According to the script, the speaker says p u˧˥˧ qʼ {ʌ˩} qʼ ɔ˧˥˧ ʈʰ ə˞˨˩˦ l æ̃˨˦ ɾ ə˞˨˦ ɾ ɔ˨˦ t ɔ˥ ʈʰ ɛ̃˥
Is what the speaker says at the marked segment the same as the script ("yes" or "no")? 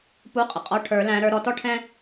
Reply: no